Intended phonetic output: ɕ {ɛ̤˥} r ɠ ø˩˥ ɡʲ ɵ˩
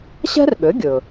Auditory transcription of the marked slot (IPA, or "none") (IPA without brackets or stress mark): ɛ̤˥